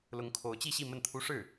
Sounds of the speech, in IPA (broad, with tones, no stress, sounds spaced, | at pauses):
l ʊ˧˥ ŋ kʰ o˧˥ ʊ̯ t͡ɕ i˥˧ ɕ i˥˧ m ə˥˩ n t̪ʰ u˥ ʂ ɻ̩˥˩